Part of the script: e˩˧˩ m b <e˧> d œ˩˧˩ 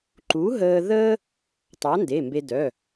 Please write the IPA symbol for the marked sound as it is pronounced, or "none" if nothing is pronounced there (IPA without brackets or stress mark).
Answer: e˧